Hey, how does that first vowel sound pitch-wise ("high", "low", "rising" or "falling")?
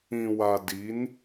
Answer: low